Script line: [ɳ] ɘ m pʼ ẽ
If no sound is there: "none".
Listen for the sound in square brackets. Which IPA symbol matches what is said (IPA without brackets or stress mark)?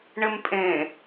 ɳ